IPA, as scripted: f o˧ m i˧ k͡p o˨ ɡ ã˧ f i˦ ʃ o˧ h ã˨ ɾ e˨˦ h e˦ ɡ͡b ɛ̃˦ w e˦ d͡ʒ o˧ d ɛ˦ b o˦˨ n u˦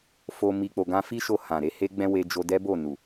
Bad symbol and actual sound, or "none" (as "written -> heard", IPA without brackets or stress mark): u˦ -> u˨